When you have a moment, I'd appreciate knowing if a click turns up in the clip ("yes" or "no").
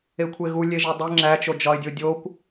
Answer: yes